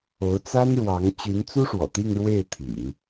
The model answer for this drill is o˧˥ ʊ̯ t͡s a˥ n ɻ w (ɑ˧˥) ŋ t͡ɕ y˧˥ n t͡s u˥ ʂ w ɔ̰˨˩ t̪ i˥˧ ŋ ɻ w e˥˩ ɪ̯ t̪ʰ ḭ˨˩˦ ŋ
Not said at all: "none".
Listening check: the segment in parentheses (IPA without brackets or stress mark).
ɑ˧˥